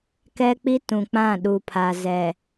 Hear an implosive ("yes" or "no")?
yes